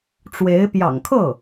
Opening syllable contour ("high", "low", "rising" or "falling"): rising